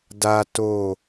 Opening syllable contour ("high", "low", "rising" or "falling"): high